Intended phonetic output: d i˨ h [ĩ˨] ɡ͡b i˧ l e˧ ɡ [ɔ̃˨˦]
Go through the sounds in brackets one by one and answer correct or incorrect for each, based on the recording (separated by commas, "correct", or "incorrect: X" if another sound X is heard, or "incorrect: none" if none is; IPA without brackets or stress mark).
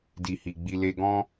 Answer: incorrect: i˨, incorrect: ɔ̃˦